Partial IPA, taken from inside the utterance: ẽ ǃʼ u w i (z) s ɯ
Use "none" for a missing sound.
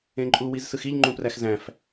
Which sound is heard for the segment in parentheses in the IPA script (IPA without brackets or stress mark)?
z